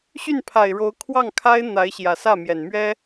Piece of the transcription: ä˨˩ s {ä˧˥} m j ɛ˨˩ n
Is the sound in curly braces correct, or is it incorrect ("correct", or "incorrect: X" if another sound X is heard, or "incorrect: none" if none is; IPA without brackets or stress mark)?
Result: incorrect: ä˥˩